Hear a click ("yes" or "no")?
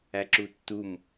yes